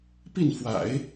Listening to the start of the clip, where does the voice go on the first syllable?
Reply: falling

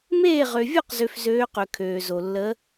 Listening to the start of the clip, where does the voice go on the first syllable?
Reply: falling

